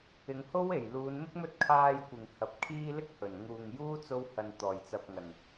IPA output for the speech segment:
ɪ˨˧ŋho˥w e˨˩j luː˨˧nmɪ˥k̚mɵ˥t̚ kʰaː˧j kʷɪ˨ŋ hɐ˨˥p̚kʰiː˥ lɪ˥k̚hɵ˨˩nŋuː˨ŋjuː˥ t͡so˥whɐ˧n t̪ɔː˨˩jt͡sɐ˨p̚ŋɐ˨˩n

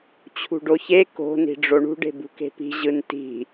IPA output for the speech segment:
t͡ɕʰṳɖoçe ko̤ ni̤ɖ͡ʐoɳṳ ɖe̤bṳke̤pi̤ ʑɯnti̤

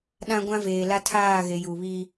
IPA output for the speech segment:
ɗã˦ɡʷã˦veː˨ la˦tʰaː˦˨ɣe˨ ju˨βi˦

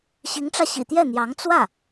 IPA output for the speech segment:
ɕi˧˥ŋʈ͡ʂä˧ɕḭ˨˩ t̪jɛ˥˩n̪jɑ˧˥ŋ t͡swä˥˩

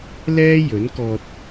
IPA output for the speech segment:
lɛː˥ jɵ˨˥nkɔː˧t̚

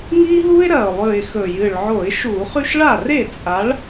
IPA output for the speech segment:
ŋi˦ɦu˦ɪ̯ɾɐ˨˩ʊ̯ lˠʉ˨˩ɪ̯xɵ˨˩ jɨ˨˩ɭʕo˧˩˧ɪ̯ʃu˧˩˧ χʉ˦ʃɭa˥˩re˥˩ t͡sʼa˨˥ɭ

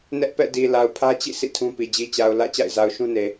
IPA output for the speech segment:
nɛ˦ʔpɛ̰˦˨di˨ la˨ʊ̯pʰä˦t͡ɕḭ˦˨ sḭ˦˨tʰũ˦pi˨ d͡ʑi˨t͡ɕa˨ʊ̯ lä̰˦˨ t͡ɕa̰˦˨ɪ̯za˨ʊ̯ʃũ˦ne˨

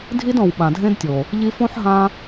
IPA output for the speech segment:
dʱi˦dɔ̃˨w ɓã˨dʱẽ˦dtʲo˨ | ʎi˧fõ˦ħɦã˧

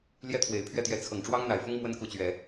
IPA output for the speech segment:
ljɛ˥˩t̪ʰwe˨˩ɪ̯pʰɥɛ˥˩t̪jɛ˧˥ t͡sʰɤ˨˩ŋʈ͡ʂwɑ˥ŋn̪a˨˩ɪ̯fʊ˥ŋ mwə˥nku˧˥t͡ɕɥɛ˨˩˦

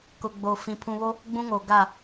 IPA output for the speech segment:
kʊ˨ ɡ͡bo˨fĩ˨ pʰũ˨βo˦ | ɡ͡bũ˦ŋo˨ɡa˦˨

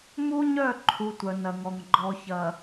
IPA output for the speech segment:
mu˦ɲœ˦˨ǃʰu˨ tʷœ˨nɐ˨ŋɔ˨ŋ ɡ͡ǃɔ˨çɐ˨

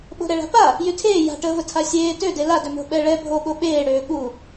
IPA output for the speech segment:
ɓo̤ɾɛɭa̤pa | jytʰeː ja̤ʈəːvə tʰasʲeː tøde ladømo̤ ɓɛɭɛ bʱoɠo ɓeːɽøː ɠu

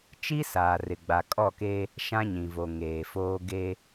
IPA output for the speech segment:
t͡ʃi˦saː˨rɪ˨ ɡ͡ba˨kʼɔ˦˨keː˦ | ʃã˦ɲĩ˨vo˨ ŋeː˨foː˦ ɡe˦

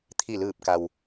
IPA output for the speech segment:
t̪ʰi˧˩lɯː˧˩p̚ka˩w

